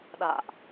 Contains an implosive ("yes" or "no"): yes